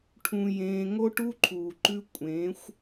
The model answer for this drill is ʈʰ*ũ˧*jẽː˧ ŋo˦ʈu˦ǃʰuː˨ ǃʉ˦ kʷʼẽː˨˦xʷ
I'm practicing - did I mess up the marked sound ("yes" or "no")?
no